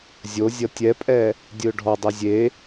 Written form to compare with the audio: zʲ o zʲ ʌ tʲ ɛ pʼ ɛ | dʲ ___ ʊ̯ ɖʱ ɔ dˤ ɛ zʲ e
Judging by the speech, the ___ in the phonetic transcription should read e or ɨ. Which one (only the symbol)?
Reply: ɨ